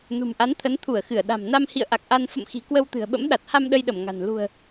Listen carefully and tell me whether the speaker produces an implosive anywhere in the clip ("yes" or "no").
yes